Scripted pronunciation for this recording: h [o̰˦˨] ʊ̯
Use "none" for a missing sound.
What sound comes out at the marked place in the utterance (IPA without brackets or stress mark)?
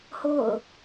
o̰˦˨